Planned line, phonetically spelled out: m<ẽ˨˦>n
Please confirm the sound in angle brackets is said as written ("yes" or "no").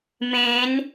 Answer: yes